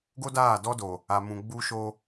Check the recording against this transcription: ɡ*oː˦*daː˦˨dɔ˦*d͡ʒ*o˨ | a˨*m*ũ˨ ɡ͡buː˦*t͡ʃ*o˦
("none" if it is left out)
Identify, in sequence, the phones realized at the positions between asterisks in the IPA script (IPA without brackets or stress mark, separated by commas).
o˦, d, m, ʃ